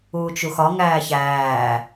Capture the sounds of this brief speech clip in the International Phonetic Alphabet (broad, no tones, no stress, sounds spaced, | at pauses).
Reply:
uː t͡ʃ u x ɒ ŋ æː ç æː